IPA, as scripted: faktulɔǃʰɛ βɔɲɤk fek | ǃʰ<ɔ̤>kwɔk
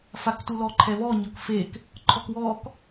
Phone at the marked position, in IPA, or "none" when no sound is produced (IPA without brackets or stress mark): ɔ